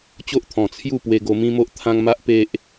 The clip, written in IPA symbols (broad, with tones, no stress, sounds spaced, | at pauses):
t͡ɕ o˦ ʔ t̪ʰ ɔ̃˨˩ t͡sʰ j u˥˧ p w e˧ ɡ o˧ m ĩ˦ m o˦ ʔ t̪ʰ ã˦ ŋ m a˦ ʔ p e˦ ʔ